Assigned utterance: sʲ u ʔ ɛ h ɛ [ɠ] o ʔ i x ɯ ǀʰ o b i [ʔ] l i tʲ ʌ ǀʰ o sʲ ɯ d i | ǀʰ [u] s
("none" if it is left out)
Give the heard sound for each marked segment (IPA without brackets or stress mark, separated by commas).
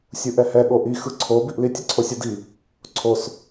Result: ɠ, ʔ, o